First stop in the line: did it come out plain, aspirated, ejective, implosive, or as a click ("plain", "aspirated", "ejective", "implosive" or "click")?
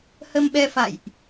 implosive